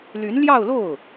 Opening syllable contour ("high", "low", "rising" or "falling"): rising